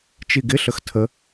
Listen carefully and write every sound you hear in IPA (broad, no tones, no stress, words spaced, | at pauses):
t͡ʃiɡɪɬəx tʰə